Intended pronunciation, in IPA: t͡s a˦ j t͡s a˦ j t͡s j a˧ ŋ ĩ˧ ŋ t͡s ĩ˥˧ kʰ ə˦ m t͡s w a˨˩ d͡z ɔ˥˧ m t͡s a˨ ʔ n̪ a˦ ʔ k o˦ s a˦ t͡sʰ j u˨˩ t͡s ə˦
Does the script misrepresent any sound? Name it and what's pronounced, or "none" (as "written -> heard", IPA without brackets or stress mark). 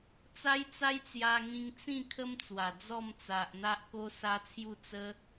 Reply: u˨˩ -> u˥˧